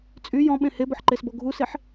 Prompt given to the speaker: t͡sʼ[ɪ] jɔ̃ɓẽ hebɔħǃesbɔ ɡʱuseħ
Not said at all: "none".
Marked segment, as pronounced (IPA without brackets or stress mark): y